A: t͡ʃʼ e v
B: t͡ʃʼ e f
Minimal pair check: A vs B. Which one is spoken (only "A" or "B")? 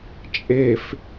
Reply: B